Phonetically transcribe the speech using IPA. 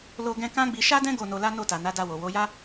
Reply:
l o˧ ɡ ɛ̃˧ k ã˦ ɡ͡b i˧ ʃ a˦ d ɛ̃˦ ɡ o˦˨ n o˧ l a˦ n o˦˨ t a˨ n a˨˦ d a˧ w o˨ w o˨˦ j a˦

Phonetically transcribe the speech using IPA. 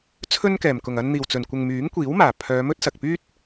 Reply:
t͡sʰ ɵ˥ n k ɛː˨˩ m k ʊ˨˩ ŋ ɐ˧ n n̪ iː˨˩ w t͡s ɵ˨˩ n kʷ ɪ˨ ŋ m yː˨˥ ŋ kʷ iː˨˥ w m aː˨˩ pʰ œː˨˧ m ɵ˥ t̚ s ɐ˨ k̚ p yː˥ t̚

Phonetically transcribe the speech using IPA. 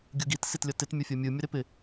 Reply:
ɡʲ u ɡ i t s i t lʲ ʌ t ɪ t mʲ o fʲ ʌ mʲ ɯ mʲ ʌ ɾ ɪ p ɪ

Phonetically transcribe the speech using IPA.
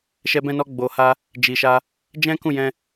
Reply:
ʃ ɛ˧ b ɛ̃˧ n ɔ˧ ɡ͡b o˨ h a˧ | d͡ʒ i˨ ʃ a˧ | d͡ʒ ɛ̃˦ k ũ˦˨ j ɛ̃˧

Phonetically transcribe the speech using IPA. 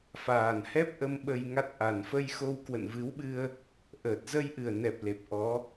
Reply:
f aː˨˩ n h ɛ˦˥ p̚ ʔ ə˧ m ɓ ə˧ j ŋ a˦˥ t̚ ʔ a˨˩ n f ə˧ j x o˧ w k w ə̰˧˨ n v ɨ˨˦ w ɓ ɨ˧ ə̯ | ʔ əː˨˩ t̚ z ə˧ j ʔ ɨ˨˩ ə̯ n ɛ˨˩ p̚ l e˨˩ p̚ ʔ ɔ˨˦

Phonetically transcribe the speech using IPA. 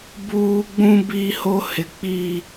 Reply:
b uː˦ ɡ͡b ũ˦ b i˦ h o˦ h ɪ˦ k͡p iː˦

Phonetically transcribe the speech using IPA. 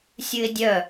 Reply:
sʲ ɨ ɪ̯ dʲ œ

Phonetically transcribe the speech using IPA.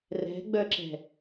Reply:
r ɛ̤ ɡ͡b œ ǁ ɛ̤

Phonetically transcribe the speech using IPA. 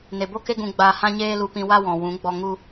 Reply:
n e˨ b o˦ k e˦ ɡ ũ˧ ɡ͡b aː˧ h ã˦ ɲ eː˦ l u˧ p ĩ˧ w a˦ w ɔ̃˨ w ũ˨˦ ɡ͡b ɔ˧ ŋ u˦

